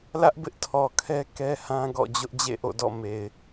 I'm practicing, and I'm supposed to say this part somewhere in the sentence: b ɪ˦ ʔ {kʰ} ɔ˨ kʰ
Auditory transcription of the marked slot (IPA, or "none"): tʰ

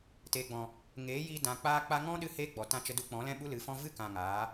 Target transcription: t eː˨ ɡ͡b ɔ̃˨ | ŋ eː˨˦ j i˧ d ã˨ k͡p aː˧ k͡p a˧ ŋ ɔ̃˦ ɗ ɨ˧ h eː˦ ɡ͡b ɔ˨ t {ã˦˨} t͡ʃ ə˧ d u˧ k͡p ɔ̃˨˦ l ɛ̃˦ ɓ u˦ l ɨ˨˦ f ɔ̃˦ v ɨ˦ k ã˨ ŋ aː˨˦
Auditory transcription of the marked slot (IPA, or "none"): ã˦˨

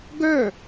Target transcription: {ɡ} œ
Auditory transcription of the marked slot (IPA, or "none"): ɡ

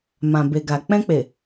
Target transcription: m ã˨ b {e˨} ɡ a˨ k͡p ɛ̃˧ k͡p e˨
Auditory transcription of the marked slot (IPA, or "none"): e˨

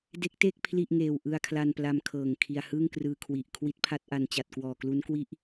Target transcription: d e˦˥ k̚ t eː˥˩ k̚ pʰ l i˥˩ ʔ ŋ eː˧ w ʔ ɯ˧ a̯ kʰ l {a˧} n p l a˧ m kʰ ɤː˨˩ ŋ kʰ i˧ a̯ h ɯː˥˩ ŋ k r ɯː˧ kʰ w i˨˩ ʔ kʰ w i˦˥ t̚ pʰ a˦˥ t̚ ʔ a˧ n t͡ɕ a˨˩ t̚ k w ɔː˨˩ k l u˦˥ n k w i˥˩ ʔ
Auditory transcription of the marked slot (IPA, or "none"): a˧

